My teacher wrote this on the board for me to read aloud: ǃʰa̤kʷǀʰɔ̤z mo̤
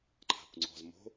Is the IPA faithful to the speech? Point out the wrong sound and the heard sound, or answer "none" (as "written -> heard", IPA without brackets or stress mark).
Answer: ǀʰ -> ŋ͡ǀ